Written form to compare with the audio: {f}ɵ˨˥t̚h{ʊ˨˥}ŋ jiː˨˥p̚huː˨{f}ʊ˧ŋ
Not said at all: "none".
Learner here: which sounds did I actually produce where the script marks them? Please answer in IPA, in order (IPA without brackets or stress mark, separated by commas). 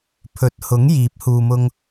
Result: pʰ, ʊ˨˥, m